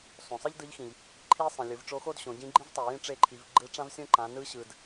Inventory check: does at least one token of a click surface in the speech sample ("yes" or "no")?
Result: yes